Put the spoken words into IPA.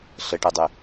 ɬ ɘ ʈ ɯ dˤ y

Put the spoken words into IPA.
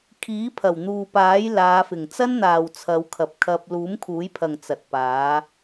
kʰ iː˨˥ pʰ ɐ˨˩ w n̪ uː˨ p aː˨˥ j l aː˨˧ f ɪ˨˩ ŋ t͡s ɐ˥ n n̪ aː˨ w t͡sʰ ɐ˨˧ w kʰ ɐ˨ p̚ kʰ ɐ˧ p̚ l uː˨˥ m kʰ uː˨˥ j pʰ ɐ˨ ŋ t͡s ɐ˨ t̚ p aː˨˥

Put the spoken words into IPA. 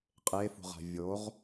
qʼ e f ṳ ʁ a̤ vʲ o ʁ

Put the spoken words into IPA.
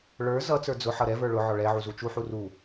ɭ ə˞ z ʌ t͡s ə˞ d͡z ʊ ħ ʌ ɾ ɛ v ə˞ ɭ ʊ ʕ ɔ ɭ ɛ ʕ u z u t͡ʃ u ħ u r u

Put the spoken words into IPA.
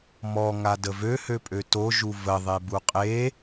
m ɔ ŋ a d ə v ø h ø pʼ ø t o ʒ u v ə ðˤ e b u qʼ e

